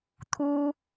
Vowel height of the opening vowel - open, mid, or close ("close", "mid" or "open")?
close